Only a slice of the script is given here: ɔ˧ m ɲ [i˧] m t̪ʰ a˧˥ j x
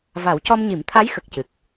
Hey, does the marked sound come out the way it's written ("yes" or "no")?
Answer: no